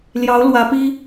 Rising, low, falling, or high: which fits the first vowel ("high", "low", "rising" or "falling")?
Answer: rising